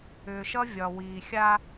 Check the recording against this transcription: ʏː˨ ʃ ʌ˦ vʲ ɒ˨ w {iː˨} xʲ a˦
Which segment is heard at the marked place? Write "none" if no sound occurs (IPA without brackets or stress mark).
iː˨